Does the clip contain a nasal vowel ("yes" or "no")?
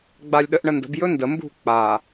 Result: no